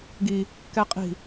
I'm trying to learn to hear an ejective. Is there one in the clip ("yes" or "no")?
yes